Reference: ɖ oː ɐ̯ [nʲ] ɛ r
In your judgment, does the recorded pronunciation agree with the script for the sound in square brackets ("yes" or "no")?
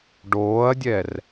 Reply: no